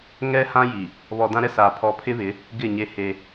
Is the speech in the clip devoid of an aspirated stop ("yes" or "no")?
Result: no